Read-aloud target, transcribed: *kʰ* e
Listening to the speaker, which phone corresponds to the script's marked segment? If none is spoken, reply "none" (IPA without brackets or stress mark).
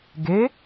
ɡ